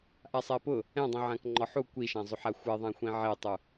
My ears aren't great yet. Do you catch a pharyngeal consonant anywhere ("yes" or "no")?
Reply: yes